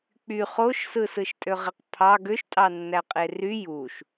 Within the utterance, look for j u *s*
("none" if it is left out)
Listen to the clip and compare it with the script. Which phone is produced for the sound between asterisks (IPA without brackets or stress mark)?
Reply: ʃ